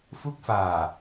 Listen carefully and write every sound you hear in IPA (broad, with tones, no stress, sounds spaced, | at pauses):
f u˦˥ k̚ f aː˨˩